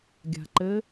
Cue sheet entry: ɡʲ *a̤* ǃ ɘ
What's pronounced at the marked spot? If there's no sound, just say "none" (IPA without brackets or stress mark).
a̤